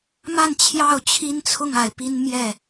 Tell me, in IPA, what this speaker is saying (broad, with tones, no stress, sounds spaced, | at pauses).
m a˥˨ n t͡ɕʰ j ɑ˥˨ ʊ̯ t͡ɕʰ i˦ n t͡sʰ ʊ˥˨ ŋ a˨˦ ɪ̯ p i˦ n m j ɛ˥˨